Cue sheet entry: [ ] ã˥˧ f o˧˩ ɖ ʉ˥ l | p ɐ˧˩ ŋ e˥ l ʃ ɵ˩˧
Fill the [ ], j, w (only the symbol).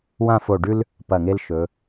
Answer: w